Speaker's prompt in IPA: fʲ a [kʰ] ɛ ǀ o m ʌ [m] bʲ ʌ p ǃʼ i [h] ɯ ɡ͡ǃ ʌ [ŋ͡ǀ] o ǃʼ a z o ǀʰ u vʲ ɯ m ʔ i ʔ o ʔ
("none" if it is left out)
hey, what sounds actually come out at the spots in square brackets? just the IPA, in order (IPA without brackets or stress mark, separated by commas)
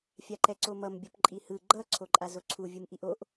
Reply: ǃ, m, h, ǀʰ